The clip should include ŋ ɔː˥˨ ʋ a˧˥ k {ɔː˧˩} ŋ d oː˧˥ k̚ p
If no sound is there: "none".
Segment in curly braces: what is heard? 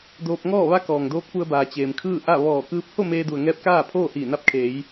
ɔː˩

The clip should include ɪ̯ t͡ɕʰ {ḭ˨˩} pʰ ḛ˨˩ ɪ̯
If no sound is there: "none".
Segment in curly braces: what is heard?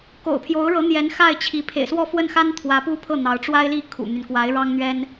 i˧˥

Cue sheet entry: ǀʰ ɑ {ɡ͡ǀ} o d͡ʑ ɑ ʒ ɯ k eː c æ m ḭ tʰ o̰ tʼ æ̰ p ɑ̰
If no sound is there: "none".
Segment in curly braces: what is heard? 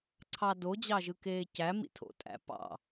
d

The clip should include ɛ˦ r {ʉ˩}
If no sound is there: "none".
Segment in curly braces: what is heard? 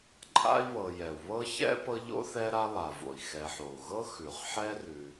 ʉ˨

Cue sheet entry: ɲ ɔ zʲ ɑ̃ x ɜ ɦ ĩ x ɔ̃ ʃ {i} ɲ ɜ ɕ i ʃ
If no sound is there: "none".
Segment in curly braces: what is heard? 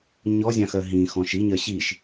i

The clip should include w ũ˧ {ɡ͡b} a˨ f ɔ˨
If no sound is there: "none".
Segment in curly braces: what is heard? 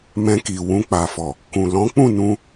k͡p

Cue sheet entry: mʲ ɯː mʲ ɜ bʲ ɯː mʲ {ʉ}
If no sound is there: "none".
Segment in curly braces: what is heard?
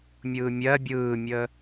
ə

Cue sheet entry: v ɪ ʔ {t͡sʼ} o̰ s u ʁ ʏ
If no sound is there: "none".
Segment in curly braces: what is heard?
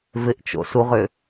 t͡ʃ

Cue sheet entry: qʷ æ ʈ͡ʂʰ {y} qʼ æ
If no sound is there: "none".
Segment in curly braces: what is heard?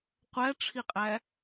i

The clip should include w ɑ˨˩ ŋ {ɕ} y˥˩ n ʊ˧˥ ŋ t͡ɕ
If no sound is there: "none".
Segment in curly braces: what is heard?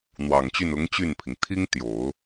t͡ɕ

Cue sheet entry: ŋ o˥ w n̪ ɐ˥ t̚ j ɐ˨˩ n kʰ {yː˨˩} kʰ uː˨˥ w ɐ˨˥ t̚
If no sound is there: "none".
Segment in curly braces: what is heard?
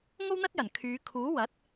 yː˨˧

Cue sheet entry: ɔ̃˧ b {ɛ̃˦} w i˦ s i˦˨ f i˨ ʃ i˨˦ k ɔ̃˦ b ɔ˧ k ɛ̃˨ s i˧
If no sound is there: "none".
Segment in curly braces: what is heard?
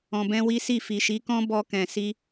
ɛ̃˦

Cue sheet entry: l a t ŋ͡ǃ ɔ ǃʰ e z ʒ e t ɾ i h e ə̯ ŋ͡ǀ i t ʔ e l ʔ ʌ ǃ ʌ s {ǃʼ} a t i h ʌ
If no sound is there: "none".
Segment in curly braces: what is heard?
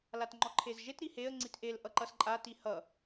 ǃʼ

